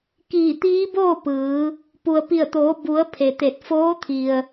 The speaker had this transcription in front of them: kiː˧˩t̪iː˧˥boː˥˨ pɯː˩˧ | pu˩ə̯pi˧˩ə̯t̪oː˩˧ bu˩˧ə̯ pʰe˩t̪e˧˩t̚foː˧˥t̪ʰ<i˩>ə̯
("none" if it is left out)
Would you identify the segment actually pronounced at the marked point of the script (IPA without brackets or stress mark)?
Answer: i˩